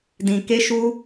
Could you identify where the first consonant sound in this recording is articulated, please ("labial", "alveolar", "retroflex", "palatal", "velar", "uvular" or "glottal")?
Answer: alveolar